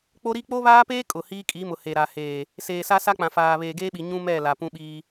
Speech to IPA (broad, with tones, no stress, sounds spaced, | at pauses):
k͡p o˦ ɾ i˦ k͡p o˦ β aː˦ p eː˦ kʼ ʊ˨ h iː˦ kʼ i˨˦ m ʊ˨ h e˨ ɾ a˨ h eː˨ | s eː˨ s a˦ s a˦ k͡p ã˨ f aː˨ β eː˨ ɡ eː˦ ɓ i˨ ɲ ũ˦ m ɛ˦˨ l a˨ p ũ˦ ɓ iː˦